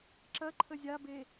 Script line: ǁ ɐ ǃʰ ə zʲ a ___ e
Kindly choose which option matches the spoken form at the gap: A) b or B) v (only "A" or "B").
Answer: A